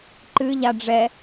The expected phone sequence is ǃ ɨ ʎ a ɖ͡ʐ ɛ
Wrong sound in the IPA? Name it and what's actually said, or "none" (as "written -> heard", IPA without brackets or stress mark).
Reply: none